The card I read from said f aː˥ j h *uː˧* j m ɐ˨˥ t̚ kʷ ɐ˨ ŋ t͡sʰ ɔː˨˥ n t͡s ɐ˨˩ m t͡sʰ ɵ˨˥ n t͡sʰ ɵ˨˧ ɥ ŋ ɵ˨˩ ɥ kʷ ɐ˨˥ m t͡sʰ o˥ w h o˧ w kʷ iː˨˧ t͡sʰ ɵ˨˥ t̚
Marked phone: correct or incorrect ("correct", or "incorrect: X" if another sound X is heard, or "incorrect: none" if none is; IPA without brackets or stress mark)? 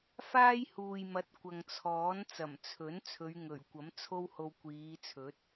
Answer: incorrect: uː˨